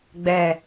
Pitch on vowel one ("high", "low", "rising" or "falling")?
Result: falling